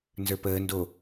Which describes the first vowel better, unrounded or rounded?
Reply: unrounded